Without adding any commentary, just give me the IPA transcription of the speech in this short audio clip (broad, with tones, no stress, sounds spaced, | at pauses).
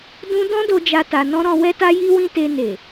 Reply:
d ũ˦ d ɔ̃˦ d o˧ d͡ʒ a˧ t a˧ n ɔ̃˦ ɾ ɔ̃˧ w ɛ˦ t a˦ j i˦ w ĩ˦ t e˧ n e˨